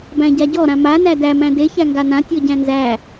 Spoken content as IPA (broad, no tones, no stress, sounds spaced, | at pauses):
b æ̃ ɟ a ɟ ɔ ɾ ã m a n æ d æ m æ̃ d e ç æ ŋ ɡ a n ã tʲ ɔ ɟ æ̃ n z æ